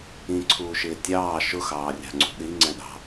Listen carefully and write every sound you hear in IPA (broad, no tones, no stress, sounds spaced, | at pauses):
ĩ ǀʰ uː ʃ ɪː tʲ ɑː ʃ ʊ x ɑː rʲ ɑ̤ ŋ͡ǀ ṳ ɗ i ŋ͡ǀ ɛ̃ ɗ ɑ̤